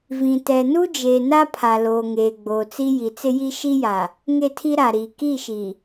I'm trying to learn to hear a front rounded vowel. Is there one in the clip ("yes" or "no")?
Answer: no